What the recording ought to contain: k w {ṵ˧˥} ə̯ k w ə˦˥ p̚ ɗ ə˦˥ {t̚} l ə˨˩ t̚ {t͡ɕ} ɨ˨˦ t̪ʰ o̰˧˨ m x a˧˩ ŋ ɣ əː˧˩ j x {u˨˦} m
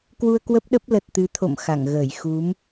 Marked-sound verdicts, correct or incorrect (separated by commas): incorrect, incorrect, incorrect, correct